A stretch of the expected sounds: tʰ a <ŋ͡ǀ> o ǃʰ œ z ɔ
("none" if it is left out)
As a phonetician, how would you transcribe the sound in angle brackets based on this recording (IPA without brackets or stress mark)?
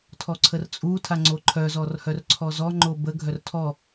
ŋ͡ǀ